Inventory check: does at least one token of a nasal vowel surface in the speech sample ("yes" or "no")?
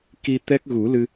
no